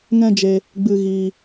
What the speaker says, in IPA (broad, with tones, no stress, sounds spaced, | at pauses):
ŋ ɛ̃˦ d͡ʒ e˧ | ɡ͡b ɨ˧ ɣ iː˧